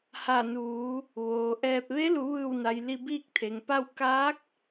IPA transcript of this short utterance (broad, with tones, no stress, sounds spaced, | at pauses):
h a˧˩ n uː˩˧ | ʋ oː˩ ʔ ɛː˧ p̚ ʋ e˧˥ l u˩˧ ʋ ɯː˧˩ w n a˩ j l i˧ b iː˥˨ k̚ t̪ʰ e˩ ŋ p a˥˨ w k aː˧˥ k̚